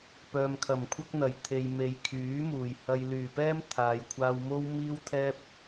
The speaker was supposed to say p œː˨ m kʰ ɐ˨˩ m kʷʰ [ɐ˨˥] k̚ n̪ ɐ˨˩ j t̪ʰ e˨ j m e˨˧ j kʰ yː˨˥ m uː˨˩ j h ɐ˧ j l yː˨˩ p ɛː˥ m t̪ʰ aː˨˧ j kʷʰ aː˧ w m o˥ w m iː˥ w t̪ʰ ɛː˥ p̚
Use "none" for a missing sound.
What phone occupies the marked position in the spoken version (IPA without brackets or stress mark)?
ɐ˥